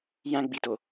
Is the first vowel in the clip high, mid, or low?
low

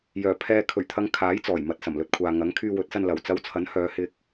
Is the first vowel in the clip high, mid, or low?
mid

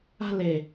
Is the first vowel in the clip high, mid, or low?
low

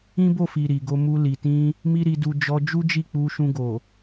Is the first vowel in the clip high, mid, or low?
high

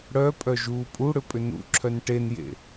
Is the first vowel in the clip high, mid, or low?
mid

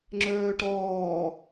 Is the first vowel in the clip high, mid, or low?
mid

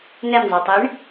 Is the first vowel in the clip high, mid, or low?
mid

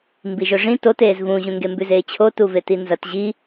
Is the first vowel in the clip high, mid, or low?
high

